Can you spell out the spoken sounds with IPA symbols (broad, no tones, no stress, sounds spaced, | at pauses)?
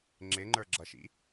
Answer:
ŋ͡ǁ ɪ ŋ͡ǃ ə˞ ɡ͡ǁ ʌ ʃ ḭ